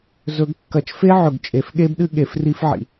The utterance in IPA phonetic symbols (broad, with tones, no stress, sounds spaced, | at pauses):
z ɵ˨˩˦ ɡ kː ɐ˨˩˦ t͡ʃ f e˦˥ ʕ ɵ˨˩ ɡ t͡ʃʼ e˨˩˦ f ɠ e˦˥ b ɗ ɨ˦˥ ɠ e˨˩˦ f r i˦˥ f ʕ ḭ˨˩